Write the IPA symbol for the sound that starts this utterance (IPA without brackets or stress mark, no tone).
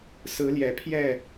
s